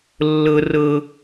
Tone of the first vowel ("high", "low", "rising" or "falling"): high